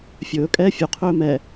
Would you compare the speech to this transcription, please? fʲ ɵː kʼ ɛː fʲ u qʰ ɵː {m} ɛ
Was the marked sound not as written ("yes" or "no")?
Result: no